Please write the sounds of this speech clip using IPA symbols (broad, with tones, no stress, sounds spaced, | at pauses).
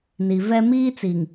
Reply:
n i˨ v ɛ˦ m iː˦ t͡s i˨ ŋ